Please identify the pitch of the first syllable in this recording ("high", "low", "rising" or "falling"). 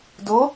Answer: rising